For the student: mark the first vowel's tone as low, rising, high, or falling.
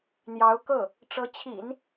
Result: rising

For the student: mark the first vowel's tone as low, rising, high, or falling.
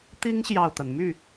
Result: high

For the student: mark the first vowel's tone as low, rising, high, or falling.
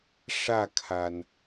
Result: falling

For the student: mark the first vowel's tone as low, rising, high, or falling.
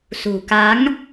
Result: low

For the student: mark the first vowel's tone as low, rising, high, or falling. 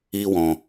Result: high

